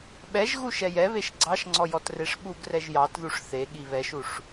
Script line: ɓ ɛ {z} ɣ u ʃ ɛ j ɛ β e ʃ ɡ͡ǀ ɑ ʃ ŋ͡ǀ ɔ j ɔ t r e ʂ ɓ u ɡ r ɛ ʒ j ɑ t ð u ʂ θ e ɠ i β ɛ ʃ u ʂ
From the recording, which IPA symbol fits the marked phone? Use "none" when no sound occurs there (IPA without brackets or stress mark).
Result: ʒ